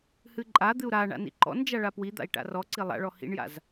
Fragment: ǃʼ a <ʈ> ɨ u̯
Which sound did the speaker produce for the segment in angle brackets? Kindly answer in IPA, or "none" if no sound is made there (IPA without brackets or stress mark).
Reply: d̪